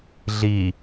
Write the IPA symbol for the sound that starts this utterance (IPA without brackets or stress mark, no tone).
ɮ